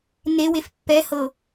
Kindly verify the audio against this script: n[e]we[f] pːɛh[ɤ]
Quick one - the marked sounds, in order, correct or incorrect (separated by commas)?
correct, correct, correct